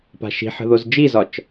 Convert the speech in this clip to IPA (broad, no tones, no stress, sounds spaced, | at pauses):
p a̤ ʃ i̤ ħ ə̤ ð o z d͡ʒ i z ɒ t͡ʃ